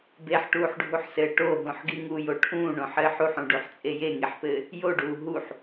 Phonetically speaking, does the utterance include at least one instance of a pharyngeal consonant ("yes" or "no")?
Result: yes